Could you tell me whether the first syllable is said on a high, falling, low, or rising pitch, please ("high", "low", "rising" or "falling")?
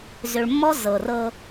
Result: low